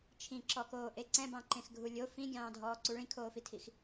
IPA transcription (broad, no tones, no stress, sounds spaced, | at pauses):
t͡ʃʰ ĩ ǁ ɔ k oː ʔ e ǀ ɛ̃ b ɑ̃ ǃ ẽ x ɡʱ u lʲ o f ĩ ɡʲ ɑ̃ː dʱ ɔː ǀ u ɭ ĩ kʰ oː f i tʰ i x